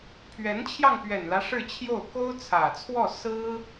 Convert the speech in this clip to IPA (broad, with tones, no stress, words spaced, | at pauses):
pʰɥɛ˧˥nt͡ɕʰjɑ˧ŋ pɥɛ˨˩nlä˦ ʂɻ̩˥˧t͡ɕʰjo˥˩ʊ̯ ko˥ʊ̯t͡sʰä˨˩t͡sʰwɔ˥˩ sɹ̩˥